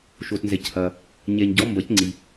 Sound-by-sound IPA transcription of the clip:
ʃo˨tnzɛ˨chɐ˨ | ɲɛ˨ɲ ɟɔ˨˦mbɐ˨˩˦c ŋ͡ǀi˨

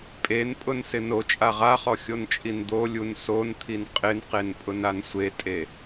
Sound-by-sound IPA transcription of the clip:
pʼenpʼʊnsɪ not͡ʃʼa ʁaχɔxʲont͡ʃʼin d̪olʲun sont̪ʰin qʼɪnqenpʼʊnan sʷetʼe

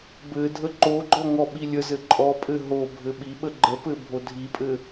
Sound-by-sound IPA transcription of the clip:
bɘdʱə ǃoɡ͡ǃɔ ŋɔɓilʲəzɘ ǃʼɔpʼɘ ɦo bʱɘɓiɓə ɡ͡ǃəpɘ bʱodʱipʼɘ

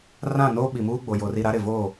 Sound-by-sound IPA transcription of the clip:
rã˦˨noː˦ɓi˨muː˦ ɡ͡bo˨ jo˨ri˨ ɾa˦ɾɪ˨ vo˦˨

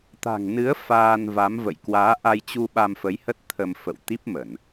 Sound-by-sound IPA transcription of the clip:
t̪a̤˨˩ŋnɨ˨˦ə̯ faː˧nva˨˦mvə̰˧˨j kwaː˨˦ʔa˧jt͡ɕu˧ ɓa˧mfə˨˦jhə˦˥t̚ t̪ʰə˧m fə̰˧˨w t̪i˦˥p̚mə˧˩˨n

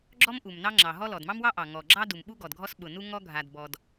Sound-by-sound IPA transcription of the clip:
ɡ͡ǁɔ˥m ʔu˩mnɑ˥ŋ͡ǁɑ˩ɦɔ˥ lɔ˩dmɑ˥mwɑ˥ʔɑ˩ ŋɔ˩ɡ͡ǁɑ˥du˩mɓu˥ ɡɔ˩dɡʱɔ˥sɓʊ˩nu˥ ŋɔ˥ ɡʱa˩dbɔ˩d

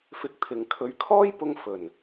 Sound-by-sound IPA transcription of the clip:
fɪ˧k̚t̪ʰɪ˨ŋ kʰɵ˨˧ɥkʰɔː˥jpʊ˧ŋ fɵ˨˩n

